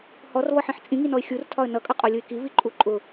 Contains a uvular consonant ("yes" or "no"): yes